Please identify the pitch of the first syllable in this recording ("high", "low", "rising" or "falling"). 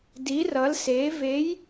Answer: rising